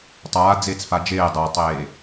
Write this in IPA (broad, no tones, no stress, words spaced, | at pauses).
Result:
tˤaː d͡zeːt͡sfad͡ʒeː dˤatˤeː